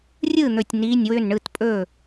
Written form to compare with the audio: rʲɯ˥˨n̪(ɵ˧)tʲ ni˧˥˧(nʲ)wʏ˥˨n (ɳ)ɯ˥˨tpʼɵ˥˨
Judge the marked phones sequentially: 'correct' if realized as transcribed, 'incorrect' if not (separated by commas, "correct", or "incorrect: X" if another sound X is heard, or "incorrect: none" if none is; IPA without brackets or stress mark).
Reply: incorrect: ɵ˧˩, correct, correct